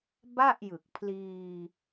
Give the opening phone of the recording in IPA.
b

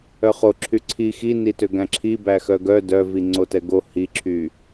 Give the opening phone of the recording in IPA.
œ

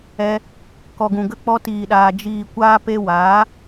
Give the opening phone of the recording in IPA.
ɛ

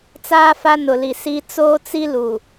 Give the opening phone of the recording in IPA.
t͡s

